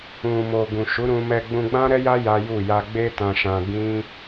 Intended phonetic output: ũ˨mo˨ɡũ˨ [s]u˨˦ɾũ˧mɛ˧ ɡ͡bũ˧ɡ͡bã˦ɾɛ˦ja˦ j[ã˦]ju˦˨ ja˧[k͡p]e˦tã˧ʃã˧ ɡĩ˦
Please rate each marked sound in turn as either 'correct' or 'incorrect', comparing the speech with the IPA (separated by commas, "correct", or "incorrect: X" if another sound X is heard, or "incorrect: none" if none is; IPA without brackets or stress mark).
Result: incorrect: ʃ, incorrect: a˦, incorrect: ɡ͡b